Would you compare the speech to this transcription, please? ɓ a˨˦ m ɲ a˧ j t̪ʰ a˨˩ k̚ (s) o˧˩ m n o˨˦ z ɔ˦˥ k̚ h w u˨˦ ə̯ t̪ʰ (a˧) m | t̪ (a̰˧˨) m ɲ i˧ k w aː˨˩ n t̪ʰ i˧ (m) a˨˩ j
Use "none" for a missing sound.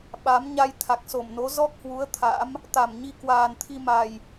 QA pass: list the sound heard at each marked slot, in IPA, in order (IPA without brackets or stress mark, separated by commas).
s, a̰˧˥, a˧˩, m